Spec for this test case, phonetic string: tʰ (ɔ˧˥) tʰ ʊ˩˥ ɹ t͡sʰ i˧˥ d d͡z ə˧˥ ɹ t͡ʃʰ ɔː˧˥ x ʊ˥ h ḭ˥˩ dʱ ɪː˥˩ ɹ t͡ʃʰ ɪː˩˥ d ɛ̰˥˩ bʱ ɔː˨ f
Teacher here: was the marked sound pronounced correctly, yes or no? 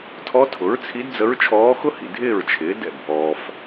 yes